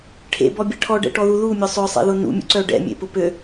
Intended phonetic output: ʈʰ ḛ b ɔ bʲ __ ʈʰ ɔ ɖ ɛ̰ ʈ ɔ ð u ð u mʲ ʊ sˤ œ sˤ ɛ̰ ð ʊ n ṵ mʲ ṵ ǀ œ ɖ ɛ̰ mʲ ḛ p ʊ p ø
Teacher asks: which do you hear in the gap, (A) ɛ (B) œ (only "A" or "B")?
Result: A